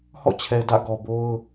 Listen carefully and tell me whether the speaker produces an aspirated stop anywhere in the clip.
yes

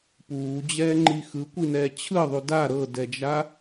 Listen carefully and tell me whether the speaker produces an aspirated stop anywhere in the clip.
yes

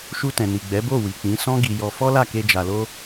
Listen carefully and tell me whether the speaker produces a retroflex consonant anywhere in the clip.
no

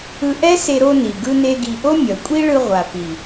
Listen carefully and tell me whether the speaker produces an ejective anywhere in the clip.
yes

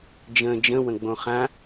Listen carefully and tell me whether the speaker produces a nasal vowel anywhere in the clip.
yes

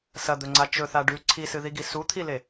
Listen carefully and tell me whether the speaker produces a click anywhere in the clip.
yes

